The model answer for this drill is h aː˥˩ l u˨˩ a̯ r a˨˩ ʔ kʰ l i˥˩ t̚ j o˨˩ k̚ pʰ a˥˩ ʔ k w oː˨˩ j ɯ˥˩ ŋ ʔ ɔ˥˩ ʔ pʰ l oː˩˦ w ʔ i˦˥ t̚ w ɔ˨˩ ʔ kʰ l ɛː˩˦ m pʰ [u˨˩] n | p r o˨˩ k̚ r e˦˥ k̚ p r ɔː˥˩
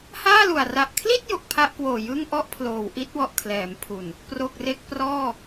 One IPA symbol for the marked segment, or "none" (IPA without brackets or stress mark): u˨˩